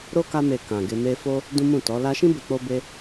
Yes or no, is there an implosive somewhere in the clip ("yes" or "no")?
no